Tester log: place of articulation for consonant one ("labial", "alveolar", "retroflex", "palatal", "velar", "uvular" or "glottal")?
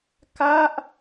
velar